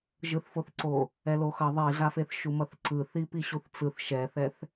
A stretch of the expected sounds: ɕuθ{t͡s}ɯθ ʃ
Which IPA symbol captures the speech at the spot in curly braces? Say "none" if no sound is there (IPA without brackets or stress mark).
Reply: t͡s